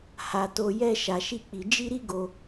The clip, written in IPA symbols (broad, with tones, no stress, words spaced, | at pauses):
ha˦to˦ jɛ˦ ʃa˧ʃi˦k͡pi˧ d͡ʒi˦ɾi˦ɡo˧